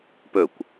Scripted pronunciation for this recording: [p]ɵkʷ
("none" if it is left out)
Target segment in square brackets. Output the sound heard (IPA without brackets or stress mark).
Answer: p